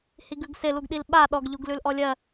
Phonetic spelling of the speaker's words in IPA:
hiɡʉɡsɪ luɡɗilɓa ɗɔɡ ʎuɡlʉlʔɔlʲɜ

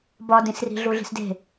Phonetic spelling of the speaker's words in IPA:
bɒdĩsri̤ ɮuɮi̤sde̤

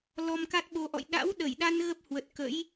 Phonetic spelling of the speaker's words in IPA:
lɔ˧mka˦˥t̚ɓo˧ʔɔ̰˧˨j ɗa̰˧˥wɗə˧˩jɗa˧n ɣə˦˥p̚hwə˨˩t̚kə̰˧˥j

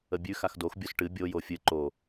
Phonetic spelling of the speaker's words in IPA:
əbʲʉ xaxdox bʲosʈɨ bʲo jofʲɨ ǃo

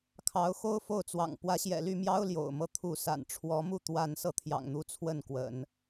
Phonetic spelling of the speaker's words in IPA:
kʰɑ˧˥ʊ̯ xo˥ʊ̯fo˥˩ʊ̯t͡swɑ̰˨˩ŋ pwä˧˥ɕjɛ̰˨˩ly˥˩mjɑ˥ʊ̯ ljo̰˨˩ʊ̯mɤ˥˧ t̪ʰu˥˩ sa̰˨˩nʈ͡ʂʰwɔ˧˥mu˥˧ t̪wa˥˧n sɤ˥˩t̪ʰjɑ̰˨˩ŋn̪u˧˥ t͡sʰwə˥˩nkwə̰˨˩˦n

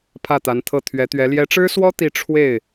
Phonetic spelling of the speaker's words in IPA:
pʰä˥˩t̪a˧˥nt̪ʰɤ˥˩ t̪ʰɥɛ˧˥t̪ɥɛ˧˥ ljɛ˧˥ʈ͡ʂɻ̩˥swɔ˥ t̪i˥˧ ʈ͡ʂʰwe˥˩ɪ̯

